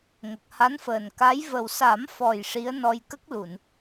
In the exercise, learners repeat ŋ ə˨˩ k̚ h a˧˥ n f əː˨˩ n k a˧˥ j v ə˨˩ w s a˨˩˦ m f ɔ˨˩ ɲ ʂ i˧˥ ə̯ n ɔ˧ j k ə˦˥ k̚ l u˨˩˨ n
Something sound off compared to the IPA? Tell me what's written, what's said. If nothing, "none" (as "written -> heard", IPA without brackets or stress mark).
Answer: ɲ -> j